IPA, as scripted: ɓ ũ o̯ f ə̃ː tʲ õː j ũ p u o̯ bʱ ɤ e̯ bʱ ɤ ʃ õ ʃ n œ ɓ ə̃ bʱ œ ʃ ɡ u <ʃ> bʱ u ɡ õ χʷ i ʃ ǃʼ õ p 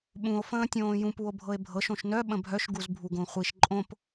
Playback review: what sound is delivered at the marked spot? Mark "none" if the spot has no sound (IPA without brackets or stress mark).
z